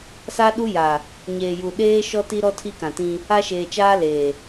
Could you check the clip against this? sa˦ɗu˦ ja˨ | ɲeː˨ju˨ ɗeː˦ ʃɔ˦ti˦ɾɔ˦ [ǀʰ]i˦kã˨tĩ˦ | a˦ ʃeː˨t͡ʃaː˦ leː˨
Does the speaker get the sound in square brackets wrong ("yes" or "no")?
yes